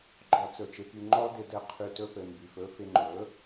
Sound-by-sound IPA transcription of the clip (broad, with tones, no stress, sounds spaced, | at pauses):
ɡ͡ǃ ɔ˨ t͡s ɵ˨ t͡ʃ ɪ˨ p y˧ ŋ͡ǃ ɔ˦ d ɪ˧ d ɘ˧ qʰ y˧ t ɵ˦ p ɘ˨ m b y˨ f ɵ˧ f ɪ˧ ŋ͡ǃ ɵ˨˦